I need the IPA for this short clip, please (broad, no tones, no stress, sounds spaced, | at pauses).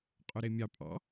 qʼ œ ɾ e mʲ ɑ pʼ ɑ̰